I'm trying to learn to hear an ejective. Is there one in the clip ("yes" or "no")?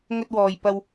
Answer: no